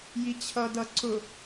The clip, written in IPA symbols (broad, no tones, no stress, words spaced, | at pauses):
jit͡ɕʰʌdʌ ǀʊ